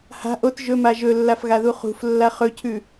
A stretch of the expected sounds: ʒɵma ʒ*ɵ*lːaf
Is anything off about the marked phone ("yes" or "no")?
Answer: no